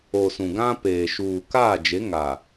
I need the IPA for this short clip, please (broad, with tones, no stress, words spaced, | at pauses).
o˨ sũ˨ɡã˦peː˨ ʃuː˨kaː˦˨d͡ʒe˨˦ ŋa˨